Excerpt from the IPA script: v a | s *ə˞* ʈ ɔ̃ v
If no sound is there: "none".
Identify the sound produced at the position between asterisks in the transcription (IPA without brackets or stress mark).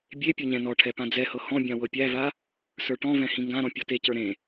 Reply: ə˞